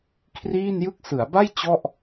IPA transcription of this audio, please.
kʰriː˥˩njɯ˥˩k̚ sɯ˩˦a̯ba˥˩j t͡ɕɔ˥˩ʔ

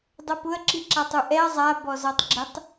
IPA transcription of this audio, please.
dˤopʊɐ̯ ǁiǁatˤuʔɛɐ̯ zˤa bɔzɔtˤɡ͡ǁɪtˤ

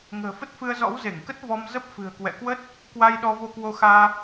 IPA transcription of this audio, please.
ŋə̤ː˨˩fə˦˥t̚fɨ˧ə̯zɔ̰˧˥w ze˧˩ŋkə˦˥t̚ vɔ˧mzə˦˥p̚ fɨ̤˨˩ə̯kwɛ̰˧˨kwə˦˥t̚ | kwa˧jɗɔ˧ vo˧kwo˧xaː˧

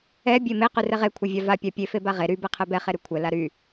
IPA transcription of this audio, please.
ɛ bʲeme qyrɛʁe kʷʰɛvʲava pʲapʲe febaʁe ɾy bɛqʰɛbɛ χeɾykʷʰɛ laɾy

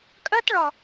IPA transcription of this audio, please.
kʼɜt ɭɒ

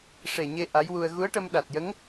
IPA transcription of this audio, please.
ʂe˨˩ɲe˧ ʔa˧˥jwu˧ə̯ ɣu˧˥ə̯ʈə˧m ɗa˨˩t̚jə˧˥ŋ

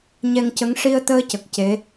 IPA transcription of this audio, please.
ɲɛ˧ŋcə˧˥ŋ ʂi˧ə̯t̪əː˧cə˨˩k̚ ce˧˥

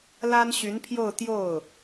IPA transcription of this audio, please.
la˥nɕy˧˥npʰjo˥˧ʊ̯ t̪jo˥˩ʊ̯

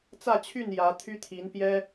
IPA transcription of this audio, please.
t͡sä˥˨t͡ɕʰy˥˨n jä˨˦t̪ʰy˦t̪ʰi˨˦n pjɛ˦

